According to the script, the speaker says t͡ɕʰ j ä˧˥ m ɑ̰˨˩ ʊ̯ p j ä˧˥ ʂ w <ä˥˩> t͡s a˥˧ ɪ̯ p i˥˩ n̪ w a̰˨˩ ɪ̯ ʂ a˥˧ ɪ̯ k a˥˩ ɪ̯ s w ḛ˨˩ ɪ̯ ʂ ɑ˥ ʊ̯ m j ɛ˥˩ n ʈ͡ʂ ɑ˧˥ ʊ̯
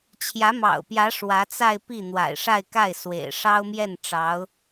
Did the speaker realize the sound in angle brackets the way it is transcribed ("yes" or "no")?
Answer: no